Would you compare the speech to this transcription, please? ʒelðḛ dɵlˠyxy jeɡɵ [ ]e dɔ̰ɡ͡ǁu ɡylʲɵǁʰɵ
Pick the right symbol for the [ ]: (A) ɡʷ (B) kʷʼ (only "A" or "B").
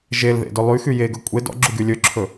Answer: B